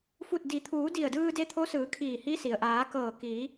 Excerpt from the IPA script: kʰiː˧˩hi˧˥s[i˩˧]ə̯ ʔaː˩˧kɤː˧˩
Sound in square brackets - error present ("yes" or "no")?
yes